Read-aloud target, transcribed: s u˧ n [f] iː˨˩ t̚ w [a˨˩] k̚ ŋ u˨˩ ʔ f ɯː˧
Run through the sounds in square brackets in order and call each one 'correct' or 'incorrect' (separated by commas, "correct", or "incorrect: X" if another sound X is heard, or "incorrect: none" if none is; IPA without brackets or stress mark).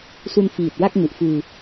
correct, incorrect: a˥˩